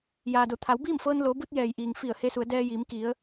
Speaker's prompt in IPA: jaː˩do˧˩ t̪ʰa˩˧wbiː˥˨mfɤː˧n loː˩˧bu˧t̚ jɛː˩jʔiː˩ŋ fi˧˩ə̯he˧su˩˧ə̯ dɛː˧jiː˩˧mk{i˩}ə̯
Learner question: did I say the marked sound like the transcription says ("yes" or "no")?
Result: no